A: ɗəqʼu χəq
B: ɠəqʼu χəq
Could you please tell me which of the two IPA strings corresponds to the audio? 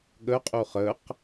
B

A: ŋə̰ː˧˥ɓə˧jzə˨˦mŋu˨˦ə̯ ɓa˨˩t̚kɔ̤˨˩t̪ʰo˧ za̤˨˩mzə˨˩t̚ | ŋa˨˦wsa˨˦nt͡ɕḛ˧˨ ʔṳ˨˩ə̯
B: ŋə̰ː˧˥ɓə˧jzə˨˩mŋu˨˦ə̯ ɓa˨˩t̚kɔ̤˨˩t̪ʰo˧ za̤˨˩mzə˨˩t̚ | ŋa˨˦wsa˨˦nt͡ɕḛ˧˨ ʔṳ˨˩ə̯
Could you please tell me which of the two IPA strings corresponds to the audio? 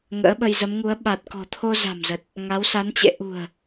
A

